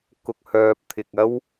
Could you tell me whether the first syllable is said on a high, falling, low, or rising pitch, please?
low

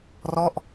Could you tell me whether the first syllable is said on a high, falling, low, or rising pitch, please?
falling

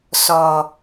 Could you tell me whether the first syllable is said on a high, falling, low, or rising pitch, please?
low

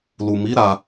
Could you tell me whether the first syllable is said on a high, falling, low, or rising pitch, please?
low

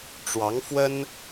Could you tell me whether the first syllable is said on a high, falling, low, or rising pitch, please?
rising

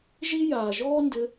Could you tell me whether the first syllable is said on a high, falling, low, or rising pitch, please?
high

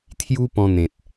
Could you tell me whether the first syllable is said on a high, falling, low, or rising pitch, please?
high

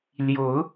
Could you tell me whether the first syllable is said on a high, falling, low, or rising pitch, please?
rising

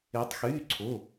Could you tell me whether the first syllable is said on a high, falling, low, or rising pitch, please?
rising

